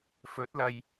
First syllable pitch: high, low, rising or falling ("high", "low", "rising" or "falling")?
rising